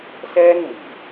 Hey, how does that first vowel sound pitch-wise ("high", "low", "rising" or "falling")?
high